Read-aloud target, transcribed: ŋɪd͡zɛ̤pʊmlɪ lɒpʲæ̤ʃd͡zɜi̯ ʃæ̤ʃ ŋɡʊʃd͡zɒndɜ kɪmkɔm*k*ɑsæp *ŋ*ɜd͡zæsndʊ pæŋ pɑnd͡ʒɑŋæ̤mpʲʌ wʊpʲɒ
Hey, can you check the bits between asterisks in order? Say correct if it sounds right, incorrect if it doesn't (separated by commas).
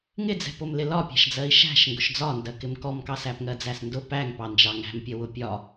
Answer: correct, correct